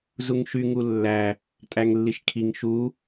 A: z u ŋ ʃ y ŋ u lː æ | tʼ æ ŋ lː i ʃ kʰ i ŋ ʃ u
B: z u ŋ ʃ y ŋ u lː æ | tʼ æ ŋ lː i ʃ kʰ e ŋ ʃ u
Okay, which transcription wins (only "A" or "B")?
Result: A